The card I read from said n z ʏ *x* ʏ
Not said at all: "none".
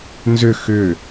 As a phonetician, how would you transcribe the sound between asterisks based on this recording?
x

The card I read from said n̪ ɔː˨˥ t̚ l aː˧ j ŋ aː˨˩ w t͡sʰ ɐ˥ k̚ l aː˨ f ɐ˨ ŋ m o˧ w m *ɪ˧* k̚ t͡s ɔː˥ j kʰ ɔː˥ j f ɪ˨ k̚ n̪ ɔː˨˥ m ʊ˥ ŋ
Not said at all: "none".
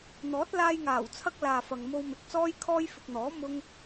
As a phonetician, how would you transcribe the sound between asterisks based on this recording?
ɪ˨˥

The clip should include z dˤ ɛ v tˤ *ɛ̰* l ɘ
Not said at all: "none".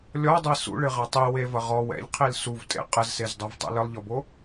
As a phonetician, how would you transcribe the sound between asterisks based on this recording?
ɛ̰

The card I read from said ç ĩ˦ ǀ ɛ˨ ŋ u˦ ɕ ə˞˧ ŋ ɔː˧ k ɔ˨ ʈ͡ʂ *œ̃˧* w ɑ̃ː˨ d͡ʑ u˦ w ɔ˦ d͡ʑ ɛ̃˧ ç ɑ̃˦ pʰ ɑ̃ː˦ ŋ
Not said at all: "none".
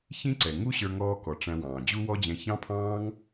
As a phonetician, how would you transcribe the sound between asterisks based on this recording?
æ̃˧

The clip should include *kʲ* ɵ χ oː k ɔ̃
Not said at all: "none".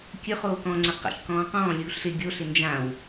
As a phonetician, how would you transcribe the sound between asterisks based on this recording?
kʲ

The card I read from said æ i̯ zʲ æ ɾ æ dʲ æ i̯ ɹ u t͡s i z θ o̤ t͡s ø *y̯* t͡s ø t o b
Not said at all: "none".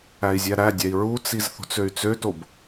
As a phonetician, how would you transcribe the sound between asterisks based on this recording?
y̯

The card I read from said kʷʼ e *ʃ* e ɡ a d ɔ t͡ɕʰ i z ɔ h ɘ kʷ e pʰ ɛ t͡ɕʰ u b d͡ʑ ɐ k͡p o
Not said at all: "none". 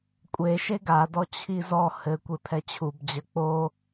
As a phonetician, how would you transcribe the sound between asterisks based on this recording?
ʃ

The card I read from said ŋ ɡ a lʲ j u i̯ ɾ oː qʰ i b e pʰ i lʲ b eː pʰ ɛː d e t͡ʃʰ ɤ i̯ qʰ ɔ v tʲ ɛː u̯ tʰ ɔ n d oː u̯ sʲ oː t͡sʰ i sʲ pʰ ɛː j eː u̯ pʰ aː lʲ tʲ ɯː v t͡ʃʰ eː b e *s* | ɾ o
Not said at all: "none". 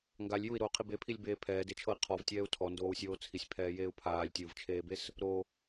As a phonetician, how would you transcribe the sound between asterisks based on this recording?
s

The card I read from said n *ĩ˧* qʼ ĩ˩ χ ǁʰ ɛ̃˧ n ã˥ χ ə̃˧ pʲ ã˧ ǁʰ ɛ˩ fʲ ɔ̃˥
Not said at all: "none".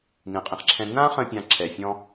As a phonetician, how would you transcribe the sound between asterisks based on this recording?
ĩ˩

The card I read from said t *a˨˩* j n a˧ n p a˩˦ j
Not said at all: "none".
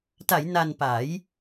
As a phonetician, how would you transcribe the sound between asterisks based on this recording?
a˩˦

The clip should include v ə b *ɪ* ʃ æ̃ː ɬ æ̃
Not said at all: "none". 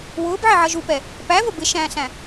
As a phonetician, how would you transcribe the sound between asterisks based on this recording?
ɪ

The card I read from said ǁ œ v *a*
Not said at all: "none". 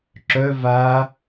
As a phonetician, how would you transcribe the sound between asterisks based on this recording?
aː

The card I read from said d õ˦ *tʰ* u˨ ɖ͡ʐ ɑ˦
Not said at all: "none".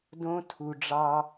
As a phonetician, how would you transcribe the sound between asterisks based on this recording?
tʰ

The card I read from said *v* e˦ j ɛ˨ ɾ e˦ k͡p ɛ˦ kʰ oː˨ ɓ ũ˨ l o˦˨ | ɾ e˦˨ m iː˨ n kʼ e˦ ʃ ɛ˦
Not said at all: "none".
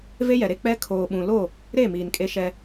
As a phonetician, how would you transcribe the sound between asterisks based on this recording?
v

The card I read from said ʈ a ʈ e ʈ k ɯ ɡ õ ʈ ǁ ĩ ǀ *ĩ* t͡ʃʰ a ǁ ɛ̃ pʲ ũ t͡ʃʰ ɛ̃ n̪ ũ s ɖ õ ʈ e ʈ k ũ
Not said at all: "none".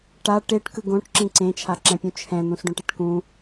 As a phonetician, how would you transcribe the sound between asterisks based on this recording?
ẽ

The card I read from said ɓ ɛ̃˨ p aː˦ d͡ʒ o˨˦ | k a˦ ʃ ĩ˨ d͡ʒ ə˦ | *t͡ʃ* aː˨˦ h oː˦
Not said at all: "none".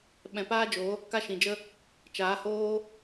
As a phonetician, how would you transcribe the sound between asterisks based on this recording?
t͡ʃ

